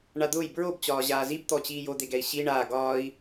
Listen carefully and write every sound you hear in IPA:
ɳ a d̪ ʊː j b ɹ o b t͡ɕ ɒː ʑ aː z i b t̪ ɔ t͡ɕ iː j o d̪ e ɡ ɛ i̯ ɕ i ɳ aː ɡ ɒː i̯

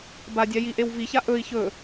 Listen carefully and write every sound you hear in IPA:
b a dʲ a j i ʔ e w v i ç a ʔ ɵ i̯ ç ɵ

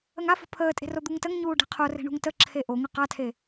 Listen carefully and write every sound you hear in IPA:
ə ŋ a f o̤ pʰ əː tʼ e̤ r o d̪ u ŋ t ə ŋ ɲ uː ɖ e̤ qʰ o r e̤ ɳ ṳ ŋ t ə ǁʰ e ʔ o ŋ ə q a tʰ e

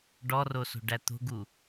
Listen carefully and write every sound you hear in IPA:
ɖ ɔ r o s o̤ ɖ æ t̪ o̤ ɡ u

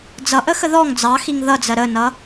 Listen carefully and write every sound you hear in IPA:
d͡z ʌ ʔ ə x ə ð ɔ ŋ d͡z ɑ x i ŋ ð ʌ d͡z ɜ ɾ ə n ʌ

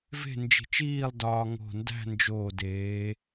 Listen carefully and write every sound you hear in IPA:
v e̤˥˧ n d͡ʒ i̤˧˩ t͡ʃ iː˥˧ lˠ d ɒː˧ ŋ o̤˧˩ n d æ̤˥˧ n d͡ʒ oː˧˩ d eː˩˧

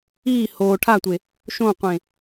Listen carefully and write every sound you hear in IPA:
iː h oː ʈʰ a tʷ e | ʃ õ qʷ ẽ

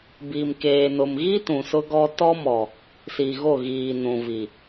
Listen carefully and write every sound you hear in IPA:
b iː˨ m k eː˨ n ʊ˨ m ɣ i˦ t ũ˨ s ʊ˦ ɡ ɔ˦ t ɔ˦ m ɔ˨ | s i˨ ɣ o˦˨ ɣ iː˨ n ũ˨ v i˨

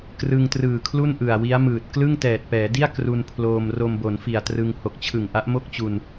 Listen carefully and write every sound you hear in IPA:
k r ɯ˧ ŋ t r ɯː˨˩ kʰ l u˥˩ n ʔ ɯ˨˩ a̯ w i˦˥ a̯ m ɯː˨˩ t̚ k l ɯ˥˩ ŋ t ɛː˨˩ t̚ p ɛː˩˦ d i˥˩ a̯ k r u˧ n pʰ l oː˧ m r o˧ m b o˩˦ n f i˨˩ a̯ t r ɯ˧ ŋ h o˨˩ k̚ t͡ɕʰ ɯ˨˩ ŋ ʔ a˦˥ ʔ m o˥˩ k̚ t͡ɕ u˧ n

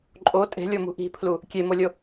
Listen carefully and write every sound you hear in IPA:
ǃʼ o tʼ e̤ lʲ o m ṳ ʔ i̤ pʰ l u | kʲ e m o lʲ o

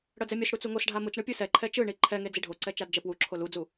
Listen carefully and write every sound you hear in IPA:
ɽ ʌ d͡z ɛ mʲ o s ɽ u t͡s u ŋ o s ɖʱ a m ɯ t͡s ɳ ɯ pʲ u s ɛ ǃʰ ɛ t͡ʃ ɯ ɳ i ǃʰ ɛ ŋ e d͡z i ɖʱ o ǀ ɛ t͡ʃ a d d͡ʒ ɛ p w u ǁʰ o l u d͡z u

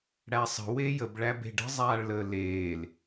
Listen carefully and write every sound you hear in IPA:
ɽ æ sˤ ə̤ w e j ə b ɭ æ b e̤ ɖ ə̤ zˤ aː ɭ l əː l eː l

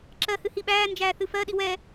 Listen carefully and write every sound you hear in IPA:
ǁ ɜ h ɨ h i ɓ æː n d͡ʒ æː θ ɨ f ɜ ɗ i w ɛ

